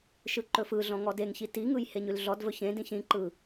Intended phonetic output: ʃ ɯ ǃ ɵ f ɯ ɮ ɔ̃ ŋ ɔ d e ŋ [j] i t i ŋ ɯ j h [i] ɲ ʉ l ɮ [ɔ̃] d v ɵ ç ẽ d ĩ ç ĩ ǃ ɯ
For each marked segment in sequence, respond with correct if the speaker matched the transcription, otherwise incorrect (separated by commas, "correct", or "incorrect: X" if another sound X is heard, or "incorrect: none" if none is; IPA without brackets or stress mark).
incorrect: ç, incorrect: e, incorrect: ɔ